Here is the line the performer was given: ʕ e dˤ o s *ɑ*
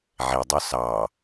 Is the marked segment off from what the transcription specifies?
no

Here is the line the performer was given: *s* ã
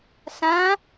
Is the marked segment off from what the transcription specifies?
no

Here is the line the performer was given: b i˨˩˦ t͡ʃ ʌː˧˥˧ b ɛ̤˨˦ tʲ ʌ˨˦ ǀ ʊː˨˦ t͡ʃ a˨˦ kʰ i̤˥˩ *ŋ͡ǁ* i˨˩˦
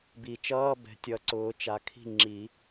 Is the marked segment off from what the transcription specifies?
no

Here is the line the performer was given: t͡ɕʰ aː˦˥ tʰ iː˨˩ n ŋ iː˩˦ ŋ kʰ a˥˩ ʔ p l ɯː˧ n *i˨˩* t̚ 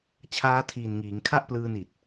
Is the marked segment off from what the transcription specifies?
no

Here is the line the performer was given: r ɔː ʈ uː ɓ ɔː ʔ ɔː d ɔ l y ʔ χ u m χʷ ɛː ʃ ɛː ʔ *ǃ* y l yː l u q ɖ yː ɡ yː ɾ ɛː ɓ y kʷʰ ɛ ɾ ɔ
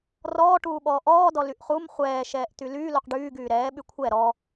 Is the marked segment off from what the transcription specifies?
yes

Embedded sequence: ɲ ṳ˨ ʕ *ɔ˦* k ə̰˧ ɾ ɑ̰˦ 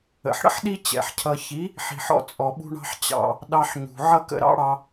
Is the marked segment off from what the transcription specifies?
yes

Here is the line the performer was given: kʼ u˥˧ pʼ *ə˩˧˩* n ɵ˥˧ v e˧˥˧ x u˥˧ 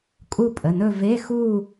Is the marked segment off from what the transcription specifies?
no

